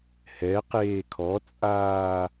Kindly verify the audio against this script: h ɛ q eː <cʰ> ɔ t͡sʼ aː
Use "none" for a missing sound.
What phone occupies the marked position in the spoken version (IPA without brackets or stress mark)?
kʰ